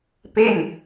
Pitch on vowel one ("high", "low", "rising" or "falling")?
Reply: falling